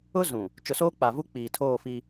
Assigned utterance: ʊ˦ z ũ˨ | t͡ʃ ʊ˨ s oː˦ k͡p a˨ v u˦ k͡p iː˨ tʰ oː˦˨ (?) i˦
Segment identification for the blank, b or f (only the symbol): f